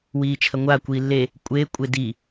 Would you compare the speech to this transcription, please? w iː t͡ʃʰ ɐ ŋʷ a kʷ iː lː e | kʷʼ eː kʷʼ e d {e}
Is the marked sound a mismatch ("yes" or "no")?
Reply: yes